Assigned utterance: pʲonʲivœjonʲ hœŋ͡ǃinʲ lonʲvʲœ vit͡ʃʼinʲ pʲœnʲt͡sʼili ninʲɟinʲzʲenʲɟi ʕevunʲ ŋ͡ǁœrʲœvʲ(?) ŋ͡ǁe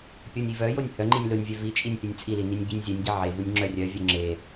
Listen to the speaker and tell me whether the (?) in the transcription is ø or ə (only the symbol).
ø